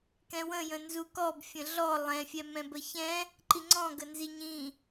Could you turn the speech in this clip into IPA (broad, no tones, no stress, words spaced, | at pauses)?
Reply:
kɛ̃wə̃ jə̃nzukɔb fʲə̃ɮɔ lˠɛ̃ fʲɛmɛ̃bəçɛ̃ | ǃiŋ͡ǀɔ̃ ɡənziɲĩ